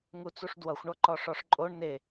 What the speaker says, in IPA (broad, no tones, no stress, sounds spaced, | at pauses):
ŋ u t͡s u ʂ d w ʌ xʷ ɳ ɔ ǃ ɔ ʂ ɔ ʂ ǃʼ o ɳ n e